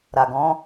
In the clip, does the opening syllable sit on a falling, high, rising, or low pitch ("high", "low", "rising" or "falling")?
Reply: low